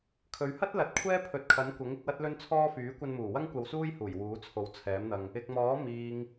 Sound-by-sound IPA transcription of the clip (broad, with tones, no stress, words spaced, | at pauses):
kʰɵ˨ɥhɐ˥t̚lɐ˨˥t̚ kʷʰɛː˥pʰɵ˨˥t̚kʰɐ˨˥nkʷɐ˨˥ŋ ɪ˨˥k̚wɐ˥t̚lɵ˥nt͡sʰɔː˥ fyː˨˥kʷɐ˧nmuː˨˩wɐ˥ŋ kʷɐ˧wsuː˥jhuː˨˩j wuː˨˥t͡sʰo˨˥wt͡sʰɛː˨˥mn̪ɐ˧ŋ | ɪ˨k̚mɔː˨˥ miː˨ŋ